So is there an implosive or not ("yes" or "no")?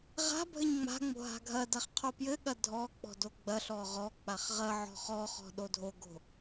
yes